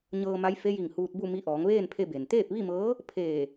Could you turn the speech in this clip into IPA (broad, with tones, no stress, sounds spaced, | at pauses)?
ɲ ɤː˧ m a˧˥ j f e˧˥ j i˧˩ ŋ h uː˧ t̚ b u˥˨ m i˧ ʔ ɔː˩˧ ŋ ʋ eː˥˨ n pʰ e˧ b e˩ n t̪ eː˥˨ p̚ ʋ i˥˨ m ɤː˧˥ | pʰ eː˧˩